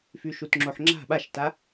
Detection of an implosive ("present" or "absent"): present